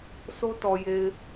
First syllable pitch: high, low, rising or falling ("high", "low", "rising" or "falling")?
high